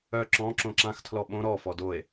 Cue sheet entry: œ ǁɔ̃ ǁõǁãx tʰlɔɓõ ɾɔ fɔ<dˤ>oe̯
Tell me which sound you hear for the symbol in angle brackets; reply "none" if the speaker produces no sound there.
d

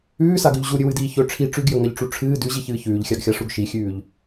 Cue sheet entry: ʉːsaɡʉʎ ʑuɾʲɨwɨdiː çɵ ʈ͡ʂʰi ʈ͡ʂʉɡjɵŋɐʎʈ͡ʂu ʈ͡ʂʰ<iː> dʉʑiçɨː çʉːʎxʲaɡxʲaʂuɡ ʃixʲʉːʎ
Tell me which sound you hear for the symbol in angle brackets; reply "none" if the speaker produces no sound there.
ɨː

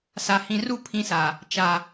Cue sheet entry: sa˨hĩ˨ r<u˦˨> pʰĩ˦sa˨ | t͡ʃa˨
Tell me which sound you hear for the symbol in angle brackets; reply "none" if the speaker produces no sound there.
u˦˨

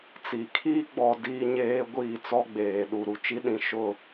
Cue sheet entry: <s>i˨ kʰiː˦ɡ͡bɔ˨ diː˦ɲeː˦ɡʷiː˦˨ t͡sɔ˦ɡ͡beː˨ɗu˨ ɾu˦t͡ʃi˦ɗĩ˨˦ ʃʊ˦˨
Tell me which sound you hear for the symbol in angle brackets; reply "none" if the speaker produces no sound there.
t͡s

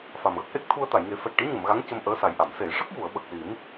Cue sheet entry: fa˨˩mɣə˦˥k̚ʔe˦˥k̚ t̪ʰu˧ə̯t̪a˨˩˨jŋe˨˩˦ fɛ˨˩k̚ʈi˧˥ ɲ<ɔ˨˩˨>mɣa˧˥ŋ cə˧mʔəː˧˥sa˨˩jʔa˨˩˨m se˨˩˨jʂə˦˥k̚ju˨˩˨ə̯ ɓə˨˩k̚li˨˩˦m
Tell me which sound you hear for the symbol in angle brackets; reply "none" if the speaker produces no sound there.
ə˨˩˨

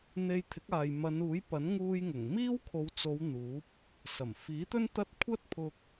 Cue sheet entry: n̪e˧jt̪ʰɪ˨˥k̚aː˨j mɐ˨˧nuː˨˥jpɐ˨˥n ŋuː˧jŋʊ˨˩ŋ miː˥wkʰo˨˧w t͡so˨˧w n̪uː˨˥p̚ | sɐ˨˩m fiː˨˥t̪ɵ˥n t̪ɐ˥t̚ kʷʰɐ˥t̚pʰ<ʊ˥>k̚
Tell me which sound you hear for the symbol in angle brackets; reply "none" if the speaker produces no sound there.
ʊ˧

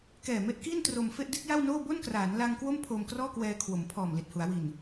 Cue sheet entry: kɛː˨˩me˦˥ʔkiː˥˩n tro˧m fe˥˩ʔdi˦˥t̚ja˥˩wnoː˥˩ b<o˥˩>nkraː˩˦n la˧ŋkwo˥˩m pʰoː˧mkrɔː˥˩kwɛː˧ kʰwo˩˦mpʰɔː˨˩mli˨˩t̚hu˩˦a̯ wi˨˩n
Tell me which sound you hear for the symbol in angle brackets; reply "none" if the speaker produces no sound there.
o˥˩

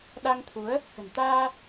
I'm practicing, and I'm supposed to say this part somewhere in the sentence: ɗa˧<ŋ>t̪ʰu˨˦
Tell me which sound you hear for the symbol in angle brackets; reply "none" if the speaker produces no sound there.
ŋ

